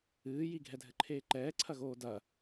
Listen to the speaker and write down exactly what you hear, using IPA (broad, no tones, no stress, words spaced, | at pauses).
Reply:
ɨː jiɡʱɛdʱɘǃʰeː ǃɛːǀʰɐɣoː dɐ